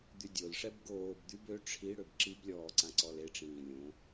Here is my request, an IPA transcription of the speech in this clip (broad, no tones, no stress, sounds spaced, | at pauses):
d̪ y dʲ o l ʂ ɛ b ɡ oː b d̪ y b ø ʈ͡ʂʰ i ɽ ø b ǁ i b lʲ ɔː ǀ ã ǀ ɔ l e ʈ͡ʂ ĩː lʲ õ